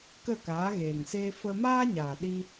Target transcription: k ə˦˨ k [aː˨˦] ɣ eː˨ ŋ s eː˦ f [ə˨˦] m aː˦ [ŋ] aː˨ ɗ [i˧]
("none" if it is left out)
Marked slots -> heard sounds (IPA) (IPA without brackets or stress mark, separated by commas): aː˨˦, ə˧, ɲ, i˧